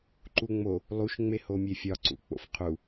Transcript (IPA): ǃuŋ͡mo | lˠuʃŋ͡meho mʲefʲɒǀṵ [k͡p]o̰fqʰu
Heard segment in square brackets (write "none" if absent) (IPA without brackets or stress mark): k͡p